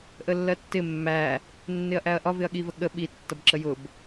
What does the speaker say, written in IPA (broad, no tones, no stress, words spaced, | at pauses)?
ʔəlːɜtːɪ mːæ | nːɪɐ̯ʔæɐ̯ʔɒ vɪɐ̯ɠivəɠə ɓi tːʌbǁəjʊb